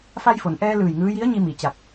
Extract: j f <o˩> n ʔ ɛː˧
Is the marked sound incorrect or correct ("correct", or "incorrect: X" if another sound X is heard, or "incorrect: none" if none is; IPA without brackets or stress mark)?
correct